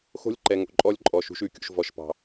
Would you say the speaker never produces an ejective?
no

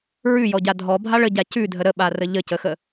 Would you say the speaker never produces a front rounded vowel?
yes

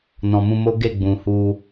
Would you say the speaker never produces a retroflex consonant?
yes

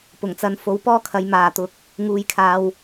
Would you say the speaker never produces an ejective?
yes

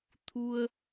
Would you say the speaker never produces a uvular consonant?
yes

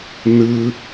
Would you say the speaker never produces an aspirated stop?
yes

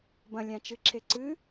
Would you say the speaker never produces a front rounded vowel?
yes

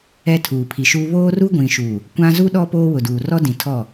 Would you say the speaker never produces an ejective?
yes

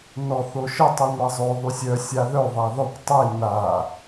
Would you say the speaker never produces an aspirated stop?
yes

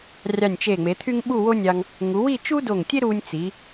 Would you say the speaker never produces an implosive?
no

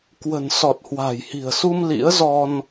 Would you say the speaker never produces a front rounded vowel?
yes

